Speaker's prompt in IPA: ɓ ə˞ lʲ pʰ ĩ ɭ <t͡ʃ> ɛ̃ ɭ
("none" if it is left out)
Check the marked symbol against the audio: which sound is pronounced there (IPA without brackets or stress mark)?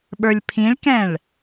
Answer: k